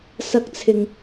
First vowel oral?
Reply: yes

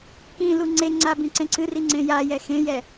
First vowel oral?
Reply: no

